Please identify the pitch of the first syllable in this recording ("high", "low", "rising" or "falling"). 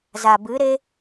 low